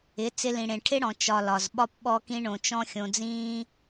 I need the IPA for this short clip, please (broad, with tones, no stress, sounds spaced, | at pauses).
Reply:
ɪ˨˦ t͡s ɪ˧ l ĩ˨ ɽ ẽ˨ ʈʰ ɪ˦ ɽ ɔ̃˨ t͡ʃ ɒ˨ l ɒ˨ z ɓ ɒ˦ p ɓ ɔ˦ k ĩ˦ ɳ õ˧ t͡ʃ ɔ̃˦ xʲ õ˧ d͡z ĩː˦